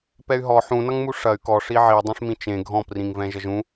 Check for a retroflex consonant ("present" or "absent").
present